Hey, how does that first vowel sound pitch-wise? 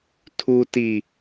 low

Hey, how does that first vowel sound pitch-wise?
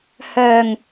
low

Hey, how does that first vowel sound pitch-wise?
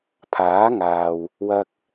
rising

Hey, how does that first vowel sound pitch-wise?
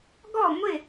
falling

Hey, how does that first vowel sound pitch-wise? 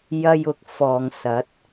high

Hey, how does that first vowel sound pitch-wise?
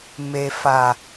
low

